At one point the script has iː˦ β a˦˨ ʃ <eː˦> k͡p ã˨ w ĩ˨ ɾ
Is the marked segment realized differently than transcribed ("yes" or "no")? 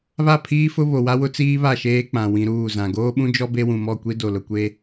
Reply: no